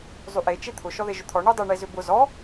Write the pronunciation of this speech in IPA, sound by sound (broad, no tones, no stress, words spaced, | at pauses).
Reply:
zˤyʔe t͡ʃet̪ʰʊ ʃɔðeʒʊt̪ʰɔ ɳydˤʏ ɳezʏbʊ zɔ